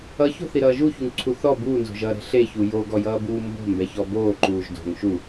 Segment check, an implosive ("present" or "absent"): absent